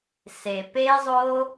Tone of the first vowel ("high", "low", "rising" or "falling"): low